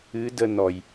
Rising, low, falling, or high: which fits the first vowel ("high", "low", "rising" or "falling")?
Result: rising